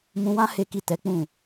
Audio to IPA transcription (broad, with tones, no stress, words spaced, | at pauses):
mũ˧wã˦ he˦ki˦˨ tɛ˨˦k͡pũ˦˨